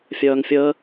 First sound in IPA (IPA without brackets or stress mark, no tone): fʲ